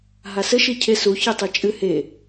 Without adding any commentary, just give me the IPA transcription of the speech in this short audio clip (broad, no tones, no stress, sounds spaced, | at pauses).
ɦ a s ɘ ʃ i cʰ e s u ç i tˤ i t͡ʃʼ ɨ h e